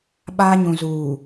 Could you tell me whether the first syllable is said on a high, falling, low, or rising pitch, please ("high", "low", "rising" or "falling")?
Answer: high